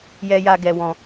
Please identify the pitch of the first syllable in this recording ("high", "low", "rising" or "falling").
high